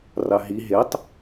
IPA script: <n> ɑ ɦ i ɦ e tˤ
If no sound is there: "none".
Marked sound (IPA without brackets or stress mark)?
r